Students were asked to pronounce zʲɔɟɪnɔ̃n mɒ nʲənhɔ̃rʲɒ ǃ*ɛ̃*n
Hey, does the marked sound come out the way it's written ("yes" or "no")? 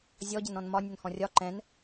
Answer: yes